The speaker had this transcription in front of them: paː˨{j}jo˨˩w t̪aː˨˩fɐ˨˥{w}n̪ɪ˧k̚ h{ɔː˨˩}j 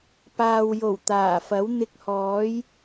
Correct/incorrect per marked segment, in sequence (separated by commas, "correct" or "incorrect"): incorrect, correct, incorrect